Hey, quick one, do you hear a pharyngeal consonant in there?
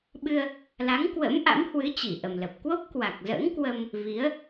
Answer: no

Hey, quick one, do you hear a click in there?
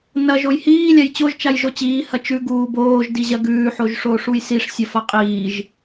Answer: no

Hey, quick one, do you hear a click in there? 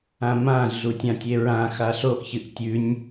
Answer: no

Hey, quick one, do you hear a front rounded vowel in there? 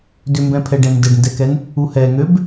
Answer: yes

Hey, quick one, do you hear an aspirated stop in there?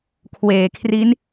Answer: yes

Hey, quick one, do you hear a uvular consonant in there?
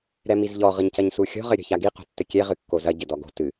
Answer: yes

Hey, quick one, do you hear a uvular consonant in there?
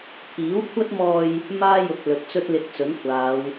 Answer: no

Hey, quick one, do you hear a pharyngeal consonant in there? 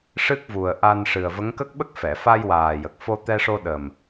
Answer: no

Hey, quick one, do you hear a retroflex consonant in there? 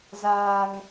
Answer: no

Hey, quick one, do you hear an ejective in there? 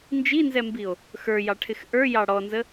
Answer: no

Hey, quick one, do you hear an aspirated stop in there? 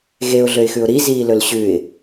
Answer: no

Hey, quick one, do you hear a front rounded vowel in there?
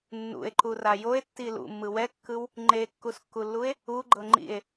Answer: no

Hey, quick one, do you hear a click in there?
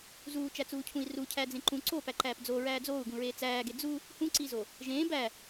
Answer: yes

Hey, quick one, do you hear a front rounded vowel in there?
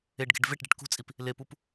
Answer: no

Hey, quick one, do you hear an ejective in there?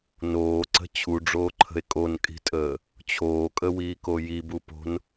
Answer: yes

